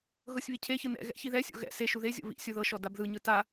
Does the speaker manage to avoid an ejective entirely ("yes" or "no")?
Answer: yes